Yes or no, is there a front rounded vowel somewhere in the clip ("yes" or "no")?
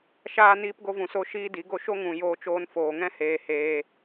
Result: no